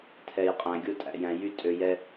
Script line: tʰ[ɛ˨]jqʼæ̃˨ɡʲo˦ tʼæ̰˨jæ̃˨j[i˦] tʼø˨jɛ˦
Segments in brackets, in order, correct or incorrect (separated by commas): correct, incorrect